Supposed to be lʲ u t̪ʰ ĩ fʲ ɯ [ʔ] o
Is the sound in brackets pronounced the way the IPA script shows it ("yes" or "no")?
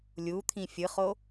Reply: no